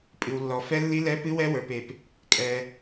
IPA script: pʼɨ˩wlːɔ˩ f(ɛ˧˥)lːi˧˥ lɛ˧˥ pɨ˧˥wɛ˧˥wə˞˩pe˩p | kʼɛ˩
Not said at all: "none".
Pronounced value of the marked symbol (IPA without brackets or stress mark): ɛ˧˥